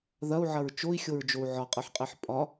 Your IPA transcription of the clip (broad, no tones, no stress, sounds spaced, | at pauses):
ð ɐ u̯ ʕ ɐ ɹ t͡ʃ o i̯ xʲ o ɹ d͡ʒ o u̯ ʕ ɒ qʼ ɯ ħ qʼ e ħ pʼ ɒ